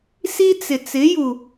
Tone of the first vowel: high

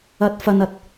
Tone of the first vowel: rising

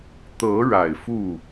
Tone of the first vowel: rising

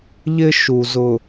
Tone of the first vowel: high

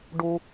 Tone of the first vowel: high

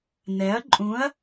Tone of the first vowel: rising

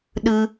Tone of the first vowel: high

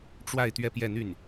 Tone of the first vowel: falling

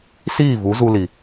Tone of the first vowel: falling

